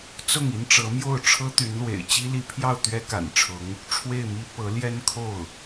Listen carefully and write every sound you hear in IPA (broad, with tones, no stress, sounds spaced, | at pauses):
t͡s ʊ˥˩ ŋ i˥ n ʈ͡ʂ ɤ˧˥ m j o˥˩ ʊ̯ ʈ͡ʂʰ ɤ˥ t̪ y˧˥ n l w ḛ˨˩ ɪ̯ t͡ɕ i˥ l i˧˥ pʰ j ɑ˥˩ ʊ̯ t̪ ɥ ɛ˥ k a̰˨˩ n ʈ͡ʂʰ ʊ˧˥ ŋ | ʈ͡ʂʰ w e˥˩ ɪ̯ m i˥ p ɤ˧˥ l j ɛ˥ n kʰ o˥˩ ʊ̯